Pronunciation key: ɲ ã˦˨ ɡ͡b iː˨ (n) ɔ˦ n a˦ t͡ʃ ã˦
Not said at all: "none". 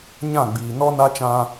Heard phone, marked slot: n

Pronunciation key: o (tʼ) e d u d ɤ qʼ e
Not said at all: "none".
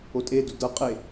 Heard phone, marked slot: tʼ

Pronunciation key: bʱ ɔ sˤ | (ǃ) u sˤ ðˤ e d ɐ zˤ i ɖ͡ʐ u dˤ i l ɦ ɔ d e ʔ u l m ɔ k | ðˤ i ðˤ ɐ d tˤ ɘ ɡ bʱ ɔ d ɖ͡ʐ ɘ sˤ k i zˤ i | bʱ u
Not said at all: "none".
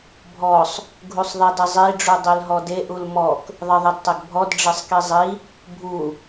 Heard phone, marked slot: ɡʱ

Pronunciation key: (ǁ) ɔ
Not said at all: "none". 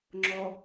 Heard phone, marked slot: ŋ͡ǁ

